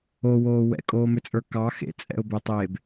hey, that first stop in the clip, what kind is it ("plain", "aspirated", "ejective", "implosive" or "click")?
ejective